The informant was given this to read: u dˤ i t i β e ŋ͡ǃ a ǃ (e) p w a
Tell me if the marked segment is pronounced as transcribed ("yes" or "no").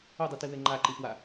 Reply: no